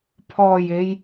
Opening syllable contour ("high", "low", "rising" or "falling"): low